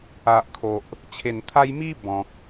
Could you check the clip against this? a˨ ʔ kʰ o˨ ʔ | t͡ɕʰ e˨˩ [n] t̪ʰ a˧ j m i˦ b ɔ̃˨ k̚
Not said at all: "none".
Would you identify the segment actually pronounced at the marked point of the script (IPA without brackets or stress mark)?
n